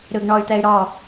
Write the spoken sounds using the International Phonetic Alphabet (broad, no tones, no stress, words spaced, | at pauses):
ɾɯɡɳɔy̯t̪ɛy̯ɾɔ